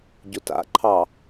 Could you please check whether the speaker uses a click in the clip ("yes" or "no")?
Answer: yes